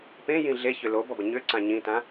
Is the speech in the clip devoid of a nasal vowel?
no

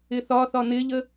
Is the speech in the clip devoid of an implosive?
yes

